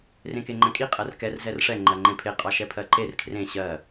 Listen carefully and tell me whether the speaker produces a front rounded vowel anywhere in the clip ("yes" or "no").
no